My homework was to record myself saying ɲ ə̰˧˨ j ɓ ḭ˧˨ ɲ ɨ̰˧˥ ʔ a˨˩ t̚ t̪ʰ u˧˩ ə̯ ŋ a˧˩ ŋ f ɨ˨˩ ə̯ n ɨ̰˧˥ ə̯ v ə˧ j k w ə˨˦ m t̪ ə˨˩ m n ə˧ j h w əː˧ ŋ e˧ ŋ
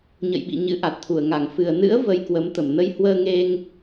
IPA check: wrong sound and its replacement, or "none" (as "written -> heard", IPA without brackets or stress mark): none